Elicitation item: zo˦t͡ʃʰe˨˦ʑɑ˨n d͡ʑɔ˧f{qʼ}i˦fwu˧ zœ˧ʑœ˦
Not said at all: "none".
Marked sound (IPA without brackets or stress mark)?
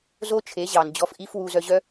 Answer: ʔ